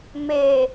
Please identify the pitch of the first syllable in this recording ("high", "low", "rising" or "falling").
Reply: low